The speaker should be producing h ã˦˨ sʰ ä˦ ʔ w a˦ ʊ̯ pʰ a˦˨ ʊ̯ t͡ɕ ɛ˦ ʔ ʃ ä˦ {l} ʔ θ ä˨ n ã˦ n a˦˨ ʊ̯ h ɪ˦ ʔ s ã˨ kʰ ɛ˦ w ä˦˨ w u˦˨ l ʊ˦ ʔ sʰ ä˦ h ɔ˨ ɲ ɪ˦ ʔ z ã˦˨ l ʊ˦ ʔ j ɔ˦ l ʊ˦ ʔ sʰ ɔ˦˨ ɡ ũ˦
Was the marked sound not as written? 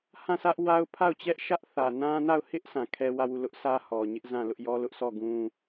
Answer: yes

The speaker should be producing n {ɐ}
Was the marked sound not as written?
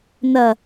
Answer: no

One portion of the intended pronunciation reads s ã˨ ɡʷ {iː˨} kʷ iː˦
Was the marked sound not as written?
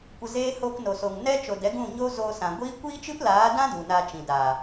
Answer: yes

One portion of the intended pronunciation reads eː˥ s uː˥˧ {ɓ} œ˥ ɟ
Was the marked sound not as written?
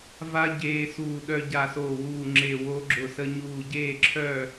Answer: yes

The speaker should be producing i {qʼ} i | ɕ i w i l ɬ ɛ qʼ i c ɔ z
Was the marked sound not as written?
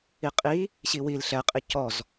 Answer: no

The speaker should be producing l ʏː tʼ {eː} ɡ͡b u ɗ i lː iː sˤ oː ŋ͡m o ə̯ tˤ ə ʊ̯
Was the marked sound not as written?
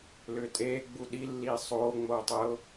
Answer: no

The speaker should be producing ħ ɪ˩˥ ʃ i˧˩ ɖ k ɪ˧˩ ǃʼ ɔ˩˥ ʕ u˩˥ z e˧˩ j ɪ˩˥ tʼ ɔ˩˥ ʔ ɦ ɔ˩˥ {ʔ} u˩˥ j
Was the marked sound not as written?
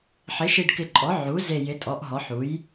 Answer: yes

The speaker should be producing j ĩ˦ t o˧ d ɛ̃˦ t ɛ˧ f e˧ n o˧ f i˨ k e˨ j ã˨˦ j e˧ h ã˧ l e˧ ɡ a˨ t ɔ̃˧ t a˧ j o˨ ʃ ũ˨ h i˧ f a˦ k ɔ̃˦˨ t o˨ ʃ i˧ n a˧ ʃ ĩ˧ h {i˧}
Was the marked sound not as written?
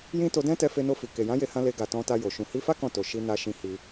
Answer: no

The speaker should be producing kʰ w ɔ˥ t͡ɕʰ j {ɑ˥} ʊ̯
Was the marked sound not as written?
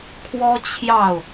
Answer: yes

